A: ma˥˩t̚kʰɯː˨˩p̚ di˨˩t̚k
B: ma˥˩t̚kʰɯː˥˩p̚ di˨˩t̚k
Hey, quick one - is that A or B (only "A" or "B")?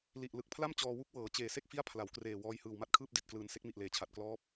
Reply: B